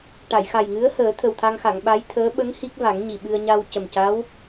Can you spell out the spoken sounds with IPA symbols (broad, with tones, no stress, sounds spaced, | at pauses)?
ʈ a˨˩˨ j x a˨˩ j ŋ ɨ˧˥ ə̯ h əː˨˩˦ t̪ʰ ə˨˩ w t̪ʰ a˧ ŋ x a˨˩˨ ŋ ɓ a˧˥ j t̪ʰ əː˧˥ ɓ ə˧˥ ŋ h i˦˥ k̚ v a˨˩˦ ŋ ɲ i˨˩ ɓ ɨ˧ ə̯ ɲ a˧ w c ə˨˩ m c a˧˥ w